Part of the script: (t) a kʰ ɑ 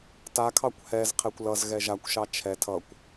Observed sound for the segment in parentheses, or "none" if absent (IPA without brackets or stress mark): t